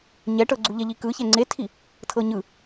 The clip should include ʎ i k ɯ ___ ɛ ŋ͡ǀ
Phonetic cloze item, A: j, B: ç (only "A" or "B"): B